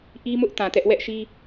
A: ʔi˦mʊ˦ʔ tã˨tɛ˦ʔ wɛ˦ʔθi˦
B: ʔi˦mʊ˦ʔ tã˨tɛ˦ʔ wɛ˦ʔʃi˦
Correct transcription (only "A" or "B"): B